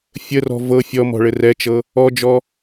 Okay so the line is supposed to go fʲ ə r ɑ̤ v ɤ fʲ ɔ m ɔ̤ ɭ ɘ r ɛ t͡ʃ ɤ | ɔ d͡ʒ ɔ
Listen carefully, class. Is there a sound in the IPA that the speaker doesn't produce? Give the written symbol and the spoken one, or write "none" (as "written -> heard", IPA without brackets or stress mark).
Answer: ɑ̤ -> ɔ̤